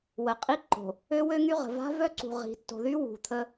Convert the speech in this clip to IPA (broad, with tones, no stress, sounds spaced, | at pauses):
w ə˨ qʼ i˦ ǃ o̤˨ | ø˦ w ø˦ ŋ y˦ ʁ ə̤˨ v a̤˦ v œ˦ ǀ ṳ˨ ʁ i̤˨ tː o̤˨ ð y˦ w ṳ˨ t̪ʰ ə˦